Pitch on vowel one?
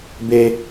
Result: high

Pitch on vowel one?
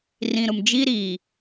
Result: low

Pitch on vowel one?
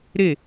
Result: falling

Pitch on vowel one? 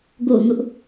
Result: falling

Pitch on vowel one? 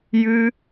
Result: high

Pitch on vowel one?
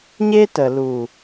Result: high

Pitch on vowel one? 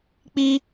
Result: high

